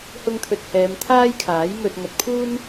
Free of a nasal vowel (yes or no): yes